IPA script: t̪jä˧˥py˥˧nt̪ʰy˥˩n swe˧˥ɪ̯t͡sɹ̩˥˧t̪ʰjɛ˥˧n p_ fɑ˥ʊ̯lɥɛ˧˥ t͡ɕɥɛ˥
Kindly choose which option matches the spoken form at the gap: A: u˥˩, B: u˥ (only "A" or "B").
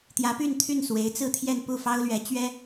A